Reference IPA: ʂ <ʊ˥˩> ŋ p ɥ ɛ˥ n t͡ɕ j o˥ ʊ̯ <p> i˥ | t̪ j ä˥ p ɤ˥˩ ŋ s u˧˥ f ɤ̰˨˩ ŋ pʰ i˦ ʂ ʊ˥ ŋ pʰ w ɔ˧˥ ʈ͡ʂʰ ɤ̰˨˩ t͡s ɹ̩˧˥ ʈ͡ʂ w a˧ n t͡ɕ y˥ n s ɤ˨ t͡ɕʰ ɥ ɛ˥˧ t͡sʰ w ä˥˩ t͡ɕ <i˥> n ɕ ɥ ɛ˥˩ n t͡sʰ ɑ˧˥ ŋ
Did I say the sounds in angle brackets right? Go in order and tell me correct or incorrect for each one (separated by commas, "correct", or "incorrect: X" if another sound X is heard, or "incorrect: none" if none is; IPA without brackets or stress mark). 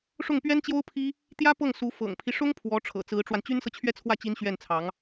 correct, incorrect: pʰ, correct